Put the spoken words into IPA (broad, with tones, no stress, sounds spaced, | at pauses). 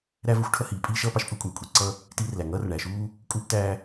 ɾ æ˥ v ə˥ xʷ ʈʰ ʌ˥ h iː˩ pʼ iː˥ ʃ ʌː˥ p ɑ˥ ʃ pʼ u˥ kʷʼ æ˩ kʷʼ i˩ ǀ ʌ˥ | t iː˥ r l æ˩ ŋ ʌː˥ r ɳ æ˩ ʃ uː˥ | kʼ uː˥ p t æː˥